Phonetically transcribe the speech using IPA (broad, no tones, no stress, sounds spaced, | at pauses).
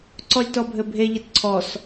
ǀ ɔ lʲ t ɔ bʱ ɘ bʱ e ʎ ɘ t ǀʰ ɔ s